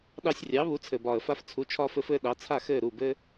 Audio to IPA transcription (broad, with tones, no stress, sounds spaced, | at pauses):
ɗ ɑ˧ sʲ rʲ ɑ˩˥ β u˩˥ t͡sʰ ɘ˩ b ɒː˩ ə̯ f a˧ f t͡sʰ u˩˥ t͡ʃʰ ɒː˧ f ɘ˧ f ɘː˧ ɗ ɑ˩˥ t͡sʰ a˥˩ x ɘː˥˩ ɾ u˥˩ b ɘ˥